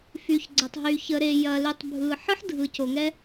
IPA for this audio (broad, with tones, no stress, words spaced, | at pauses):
fy˨çɡ͡ǀɐ˨tˤɦy˨ çə˨ɾe˨jɐ˨ly˨tˤ bʱɯ˨ ħɯ˦ħdʱɯ˨co˨ŋɛ˦